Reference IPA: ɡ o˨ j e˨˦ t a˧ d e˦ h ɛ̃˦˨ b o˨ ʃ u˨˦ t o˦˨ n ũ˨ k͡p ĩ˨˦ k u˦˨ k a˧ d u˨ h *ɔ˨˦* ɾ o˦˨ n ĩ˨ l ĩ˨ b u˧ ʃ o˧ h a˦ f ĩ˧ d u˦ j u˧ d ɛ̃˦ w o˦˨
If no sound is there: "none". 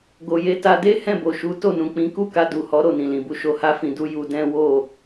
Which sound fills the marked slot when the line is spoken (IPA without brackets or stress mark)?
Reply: ɔ˨˦